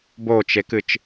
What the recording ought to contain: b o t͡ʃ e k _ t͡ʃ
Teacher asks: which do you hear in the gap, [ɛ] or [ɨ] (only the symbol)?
ɨ